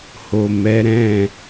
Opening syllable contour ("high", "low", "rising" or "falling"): low